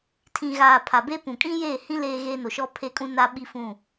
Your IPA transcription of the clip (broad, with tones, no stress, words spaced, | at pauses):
tʰĩ˨ɣaː˨ pʰa˨be˦pũ˨ kʼĩ˦jeː˦˨hĩ˦ leː˦ɣe˦no˨ ʃɔ˦pʰe˦kʼũ˦na˦ ɓi˦fũ˦˨